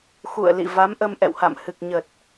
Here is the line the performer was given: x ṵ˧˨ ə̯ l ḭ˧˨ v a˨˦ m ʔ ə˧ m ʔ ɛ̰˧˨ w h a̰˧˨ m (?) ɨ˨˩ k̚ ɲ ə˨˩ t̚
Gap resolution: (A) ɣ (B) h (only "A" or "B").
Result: B